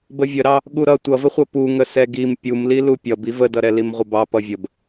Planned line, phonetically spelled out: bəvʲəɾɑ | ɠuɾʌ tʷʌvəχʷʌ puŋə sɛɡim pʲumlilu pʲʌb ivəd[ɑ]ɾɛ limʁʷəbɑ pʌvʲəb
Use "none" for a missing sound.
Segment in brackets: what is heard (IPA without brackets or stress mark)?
ʌ